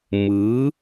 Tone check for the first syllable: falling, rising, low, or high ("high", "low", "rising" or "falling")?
rising